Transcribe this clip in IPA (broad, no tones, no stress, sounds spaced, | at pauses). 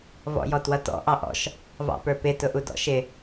v ɔ̰ j ɔ t w ʌ t ɔ̰ ʔ ɑ ʔ ɔ̰ ʃ | v ɑ̰ p ə˞ p ɪ t ʊ ʔ u d ɔ̰ ʃ ɪ